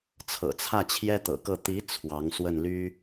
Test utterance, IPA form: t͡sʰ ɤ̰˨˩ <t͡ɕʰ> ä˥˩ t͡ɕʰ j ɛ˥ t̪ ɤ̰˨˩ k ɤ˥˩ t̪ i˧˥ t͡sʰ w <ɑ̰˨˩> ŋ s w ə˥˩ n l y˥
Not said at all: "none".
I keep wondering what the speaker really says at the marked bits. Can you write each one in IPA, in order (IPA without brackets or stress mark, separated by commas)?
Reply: t͡sʰ, ɑ˧˥